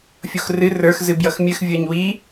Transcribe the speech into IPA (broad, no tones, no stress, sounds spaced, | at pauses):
fʲ o x r ɨ r ə˞ x z ɨ b j ʌ x mʲ ɨ x vʲ ə˞ ɲ w i